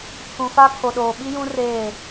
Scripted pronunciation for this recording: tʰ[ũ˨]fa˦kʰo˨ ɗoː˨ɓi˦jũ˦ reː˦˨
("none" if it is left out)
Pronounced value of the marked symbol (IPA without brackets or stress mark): ũ˨